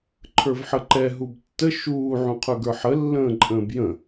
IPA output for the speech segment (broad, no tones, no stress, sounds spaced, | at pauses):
ǃʰ ə˞ v ħ ə ǃ ɛ ɦ u b tː ə ʃ uː ʕ ũ qʰ ə˞ ɡ ə˞ ħ ə lː ə̃ː ǃʼ ə̃ː b j ə̃